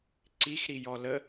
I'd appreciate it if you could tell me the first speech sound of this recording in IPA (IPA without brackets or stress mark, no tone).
ǀ